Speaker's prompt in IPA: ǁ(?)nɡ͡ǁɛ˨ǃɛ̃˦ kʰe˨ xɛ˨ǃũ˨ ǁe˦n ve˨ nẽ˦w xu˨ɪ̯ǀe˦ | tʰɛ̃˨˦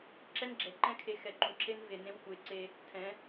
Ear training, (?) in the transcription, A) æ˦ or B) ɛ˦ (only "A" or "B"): B